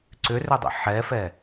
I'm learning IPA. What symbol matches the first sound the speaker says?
ǀ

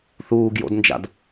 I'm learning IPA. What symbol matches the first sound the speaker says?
θ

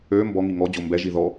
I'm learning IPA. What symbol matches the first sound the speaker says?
ø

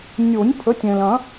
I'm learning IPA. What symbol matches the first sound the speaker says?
nʲ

